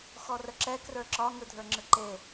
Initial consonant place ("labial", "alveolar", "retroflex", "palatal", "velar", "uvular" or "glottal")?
velar